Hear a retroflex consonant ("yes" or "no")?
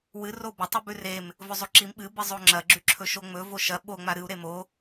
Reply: no